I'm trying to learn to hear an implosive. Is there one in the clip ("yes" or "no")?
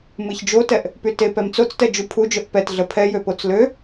no